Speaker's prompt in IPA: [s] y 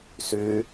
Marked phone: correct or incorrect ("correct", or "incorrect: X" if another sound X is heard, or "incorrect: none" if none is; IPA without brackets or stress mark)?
correct